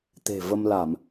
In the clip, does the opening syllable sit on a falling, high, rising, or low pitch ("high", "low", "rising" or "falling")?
low